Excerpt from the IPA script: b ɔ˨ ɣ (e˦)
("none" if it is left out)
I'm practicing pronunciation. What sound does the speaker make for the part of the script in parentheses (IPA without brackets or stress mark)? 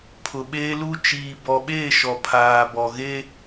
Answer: e˦